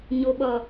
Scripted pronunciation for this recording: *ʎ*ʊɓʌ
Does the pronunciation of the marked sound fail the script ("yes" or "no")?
yes